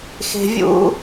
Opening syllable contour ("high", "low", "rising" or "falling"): low